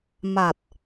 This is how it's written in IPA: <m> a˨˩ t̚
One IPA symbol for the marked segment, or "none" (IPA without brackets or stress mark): m